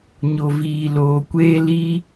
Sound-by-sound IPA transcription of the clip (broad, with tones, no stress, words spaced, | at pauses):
ɲo˨viː˨ loː˨kʷeː˦ liː˧